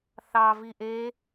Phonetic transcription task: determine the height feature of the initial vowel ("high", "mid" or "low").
low